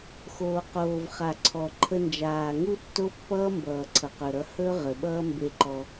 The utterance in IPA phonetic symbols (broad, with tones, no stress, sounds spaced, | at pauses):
x oː˨ q oː˨ v χ a˨ ǀʰ ɔ˨ ǃʰ ə˧ n d͡ʒ aː˨ ŋ u˦ tː o˦ pː ʌː˦ m b ʌː˨ ǀʰ ʌ˨ q ɵ˨ ɾ ʌ˧ h ɵ˦ ʁ ə˨ ɓ ʌː˦ m b e˧ ǃ ɔ˧